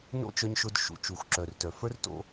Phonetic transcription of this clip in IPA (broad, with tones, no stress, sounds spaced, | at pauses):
n o̰˦ t͡ʃ œ˧ ɲ ʃ ʊ˧ d ʃ ṵ˨ t͡ʃ u˨ xʷ ǁ œ˨ r t œ˨ f ə˞˦ r t o̰˧